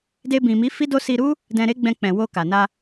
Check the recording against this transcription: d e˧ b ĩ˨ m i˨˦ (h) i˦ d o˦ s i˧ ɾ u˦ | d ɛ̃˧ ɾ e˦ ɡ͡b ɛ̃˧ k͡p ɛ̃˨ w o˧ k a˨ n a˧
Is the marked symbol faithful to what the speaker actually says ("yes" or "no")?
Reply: no